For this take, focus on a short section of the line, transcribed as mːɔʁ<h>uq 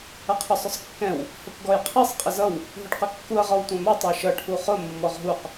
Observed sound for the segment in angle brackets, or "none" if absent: ɦ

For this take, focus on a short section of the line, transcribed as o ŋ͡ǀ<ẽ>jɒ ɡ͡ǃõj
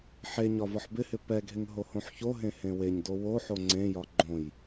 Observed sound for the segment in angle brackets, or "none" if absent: ẽ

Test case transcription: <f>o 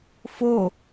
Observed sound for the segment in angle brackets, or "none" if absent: f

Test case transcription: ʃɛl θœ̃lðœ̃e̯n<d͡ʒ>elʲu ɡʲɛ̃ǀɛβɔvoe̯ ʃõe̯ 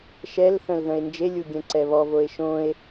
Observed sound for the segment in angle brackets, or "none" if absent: d͡ʒ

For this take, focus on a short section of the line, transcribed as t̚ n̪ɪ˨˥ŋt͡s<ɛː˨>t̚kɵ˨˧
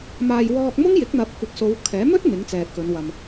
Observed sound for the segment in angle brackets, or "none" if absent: ɛː˨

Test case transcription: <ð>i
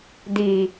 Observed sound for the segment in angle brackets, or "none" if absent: d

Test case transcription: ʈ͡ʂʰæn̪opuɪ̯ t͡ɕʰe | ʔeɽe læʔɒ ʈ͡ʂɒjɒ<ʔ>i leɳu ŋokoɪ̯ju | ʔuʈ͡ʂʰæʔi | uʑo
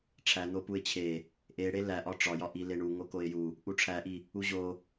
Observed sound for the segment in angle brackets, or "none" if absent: ʔ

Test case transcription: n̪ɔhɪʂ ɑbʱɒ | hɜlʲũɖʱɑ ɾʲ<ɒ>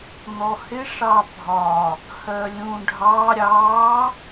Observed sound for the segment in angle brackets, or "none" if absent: ɑ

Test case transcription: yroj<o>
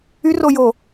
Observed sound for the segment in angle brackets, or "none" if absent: o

